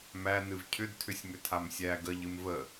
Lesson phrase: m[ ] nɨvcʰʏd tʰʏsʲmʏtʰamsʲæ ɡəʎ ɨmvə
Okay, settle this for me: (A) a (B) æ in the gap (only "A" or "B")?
B